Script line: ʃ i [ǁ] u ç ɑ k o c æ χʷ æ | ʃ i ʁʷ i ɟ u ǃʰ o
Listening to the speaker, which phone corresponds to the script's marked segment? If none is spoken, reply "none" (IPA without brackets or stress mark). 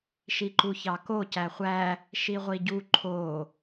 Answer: ǃ